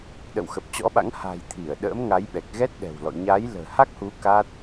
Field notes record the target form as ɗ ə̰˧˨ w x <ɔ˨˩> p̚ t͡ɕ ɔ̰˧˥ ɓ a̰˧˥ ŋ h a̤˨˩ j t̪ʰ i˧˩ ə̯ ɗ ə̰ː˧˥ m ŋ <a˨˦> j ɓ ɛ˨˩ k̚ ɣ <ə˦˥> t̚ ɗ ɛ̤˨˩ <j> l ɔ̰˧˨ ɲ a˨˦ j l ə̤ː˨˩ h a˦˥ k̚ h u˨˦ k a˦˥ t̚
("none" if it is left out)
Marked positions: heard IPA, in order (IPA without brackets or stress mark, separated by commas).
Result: ə˨˩, a˨˦, ɛ˦˥, w